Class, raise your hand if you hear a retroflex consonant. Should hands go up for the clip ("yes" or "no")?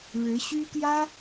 yes